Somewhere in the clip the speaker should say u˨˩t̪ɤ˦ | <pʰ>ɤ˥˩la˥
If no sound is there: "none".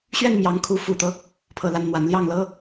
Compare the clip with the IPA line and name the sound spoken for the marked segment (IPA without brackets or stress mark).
pʰ